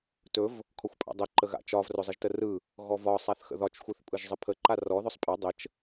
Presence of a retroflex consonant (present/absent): absent